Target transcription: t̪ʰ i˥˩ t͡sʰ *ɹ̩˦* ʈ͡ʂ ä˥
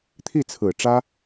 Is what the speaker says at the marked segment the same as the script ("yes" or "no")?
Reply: no